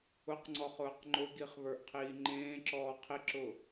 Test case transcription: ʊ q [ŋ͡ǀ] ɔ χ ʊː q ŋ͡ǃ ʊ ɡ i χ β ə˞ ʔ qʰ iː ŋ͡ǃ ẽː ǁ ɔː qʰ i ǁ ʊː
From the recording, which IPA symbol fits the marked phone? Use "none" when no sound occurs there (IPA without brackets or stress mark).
ŋ͡ǀ